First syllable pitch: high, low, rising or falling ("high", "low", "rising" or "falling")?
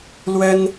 high